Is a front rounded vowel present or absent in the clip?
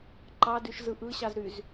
present